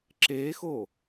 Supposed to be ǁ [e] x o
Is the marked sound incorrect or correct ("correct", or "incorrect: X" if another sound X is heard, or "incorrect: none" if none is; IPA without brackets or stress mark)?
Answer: correct